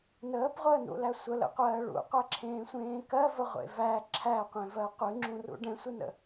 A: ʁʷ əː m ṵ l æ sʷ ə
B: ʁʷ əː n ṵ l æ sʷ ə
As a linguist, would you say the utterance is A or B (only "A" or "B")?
B